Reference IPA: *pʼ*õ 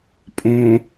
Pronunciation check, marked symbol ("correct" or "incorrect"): correct